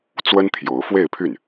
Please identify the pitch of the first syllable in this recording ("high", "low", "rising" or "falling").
high